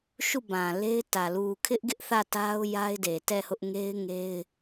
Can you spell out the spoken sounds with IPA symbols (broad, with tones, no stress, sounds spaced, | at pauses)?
ʃ u˦˨ b ã˨ l e˦ ɪ̯ t ä˨ l u˨ kʰ ɪ˦ ʔ ɡ ɪ˦ ʔ θ ä˦˨ t a˦ ʊ̯ j a˦ ɪ̯ d e˨ t ɛ˦˨ h ʊ˦ ʔ ŋ e˦ ɪ̯ ŋ e˦ ɪ̯